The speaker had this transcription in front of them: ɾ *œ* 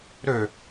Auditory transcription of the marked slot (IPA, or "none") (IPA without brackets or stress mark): ø